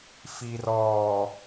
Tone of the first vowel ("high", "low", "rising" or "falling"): low